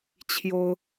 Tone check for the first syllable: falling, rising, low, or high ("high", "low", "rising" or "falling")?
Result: high